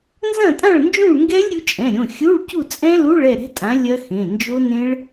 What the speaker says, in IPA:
n z ɐ̃˥˨ tʼ ã˥˨ ɭ n d͡ʒ ũ˥˨ ɭ ŋ ɡ ɛ˦˥ lʲ ɾʲ u˨˥ t͡ʃʼ ɛ̃˩˧˩ ɾʲ õ˩˧˩ xʲ u˧˥˧ ɭ c u˥˨ t͡sʼ ɛ̃˦˥ l u˧˥˧ ɭ ɛ˥˨ ɾ ɛ̤˦˥ tʼ ã˨˥ lʲ ɐ˦˥ x ẽ˩˧˩ n d͡ʒ o˦˥ n ẽ˦˥ ɭ

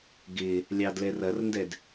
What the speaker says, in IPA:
ɡ ɪ | lʲ ɑ d l ɛ r ɐ r n d ɛ d

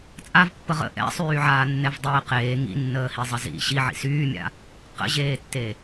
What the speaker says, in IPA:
t͡sʼ a v pː ə ʁ ə̰ ʔ ɛ̰ sˤ yː ʕ aː nː ɛ v dˤ eː q eː ŋ ḭ nː əː h i zˤ ə z ḭ ɕ i ʕ ḭ s yː mʲ a̰ | q ə̰ ʑ eː tː e

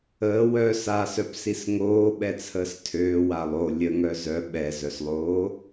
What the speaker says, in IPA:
əː w œ s a s œ p s i s ŋ oː ɓ ɛ t͡sʰ əː s tʰ øː w a lˠ o lʲ ə ŋ œ z œ ɓ ɛ z œ s lˠ oː

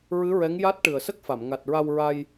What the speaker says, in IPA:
ɹ ɨ˧˥ ɹ ɛ˧˥ ŋ j a˦˥ t̚ ʈ ɨ˨˩ ə̯ s ə˦˥ k̚ f a˨˩˨ m ŋ a˨˩ t̚ ɹ a˧ w ɹ a˧ j

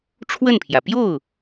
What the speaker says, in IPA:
ʈ͡ʂʰ w ə˥˩ n pʰ j ä˩ p j o˥˩ ʊ̯

